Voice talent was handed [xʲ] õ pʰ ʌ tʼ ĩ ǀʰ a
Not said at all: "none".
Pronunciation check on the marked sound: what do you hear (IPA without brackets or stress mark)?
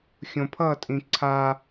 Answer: xʲ